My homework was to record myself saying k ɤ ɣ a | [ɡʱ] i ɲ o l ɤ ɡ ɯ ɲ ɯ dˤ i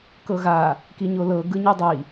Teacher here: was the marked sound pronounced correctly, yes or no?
no